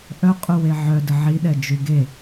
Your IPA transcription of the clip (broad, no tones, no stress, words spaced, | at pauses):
ʔœqʼuwe ʕœ dəʕiɗɛ d͡ʒyɡe